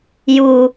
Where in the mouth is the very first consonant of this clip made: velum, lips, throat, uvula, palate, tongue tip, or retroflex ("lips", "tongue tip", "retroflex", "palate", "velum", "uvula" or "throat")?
palate